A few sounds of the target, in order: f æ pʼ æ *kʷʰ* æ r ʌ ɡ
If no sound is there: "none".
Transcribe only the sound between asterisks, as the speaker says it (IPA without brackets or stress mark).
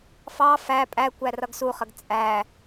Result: kʷ